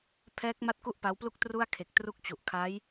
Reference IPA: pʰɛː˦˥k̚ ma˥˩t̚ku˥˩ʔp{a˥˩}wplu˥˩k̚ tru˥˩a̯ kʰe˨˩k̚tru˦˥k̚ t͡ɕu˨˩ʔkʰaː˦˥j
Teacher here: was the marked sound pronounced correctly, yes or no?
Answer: no